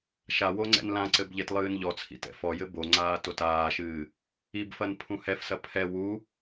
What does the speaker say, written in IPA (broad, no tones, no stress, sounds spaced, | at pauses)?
ʃ a w o ŋ͡ǀ ɛ̰ n l ã ǀ ɘ b ʎ e t lˠ ɨː n ʎ ɔ t͡sʰ ḭ t ɛ̰ f ɔ j ɘ b o ŋ͡ǀ aː t o t aː ʃ ɨː | i b f ɐ n pʰ ũ h ɛ f s ɐ pʰ ɛ w u